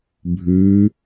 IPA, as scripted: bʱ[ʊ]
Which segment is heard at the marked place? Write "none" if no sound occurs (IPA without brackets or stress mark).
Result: ʉ